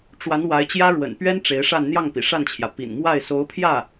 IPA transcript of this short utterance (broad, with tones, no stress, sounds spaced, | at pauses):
ʈ͡ʂ w a˧˥ n w a˧˥ ɪ̯ t͡ɕ j ä˥ ɻ w ə̰˨˩ n p ɥ ɛ˥ n ʈ͡ʂ e˧˥ ɪ̯ ʂ a˥˧ n n̪ j ɑ˥˩ ŋ p ḭ˨˩ ʂ a˥˩ n t͡ɕʰ j ä˩ p ḭ˨˩ n m w a˥˩ ɪ̯ s o˧˥ ʊ̯ pʰ j ä˥˩